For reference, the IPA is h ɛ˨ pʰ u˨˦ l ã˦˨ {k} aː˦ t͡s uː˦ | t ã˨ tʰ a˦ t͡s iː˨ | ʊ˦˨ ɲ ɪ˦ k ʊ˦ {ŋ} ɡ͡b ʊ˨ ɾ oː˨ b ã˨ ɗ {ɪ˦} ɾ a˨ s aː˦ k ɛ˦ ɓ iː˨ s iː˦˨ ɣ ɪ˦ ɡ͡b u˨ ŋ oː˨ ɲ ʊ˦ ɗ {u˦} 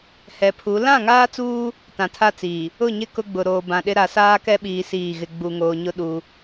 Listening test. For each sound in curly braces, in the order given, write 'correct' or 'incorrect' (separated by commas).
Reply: incorrect, incorrect, correct, correct